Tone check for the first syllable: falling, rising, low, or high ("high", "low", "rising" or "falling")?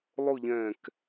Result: falling